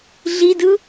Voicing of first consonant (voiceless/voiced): voiced